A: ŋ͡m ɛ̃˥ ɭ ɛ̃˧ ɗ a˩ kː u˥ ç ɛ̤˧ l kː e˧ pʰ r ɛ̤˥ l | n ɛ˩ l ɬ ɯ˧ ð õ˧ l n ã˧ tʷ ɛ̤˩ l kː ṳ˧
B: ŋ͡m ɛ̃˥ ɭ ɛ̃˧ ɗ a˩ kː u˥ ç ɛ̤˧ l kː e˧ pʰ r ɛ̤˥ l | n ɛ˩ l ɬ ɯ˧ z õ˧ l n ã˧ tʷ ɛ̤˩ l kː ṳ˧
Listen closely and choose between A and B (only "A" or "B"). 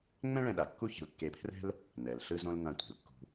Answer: B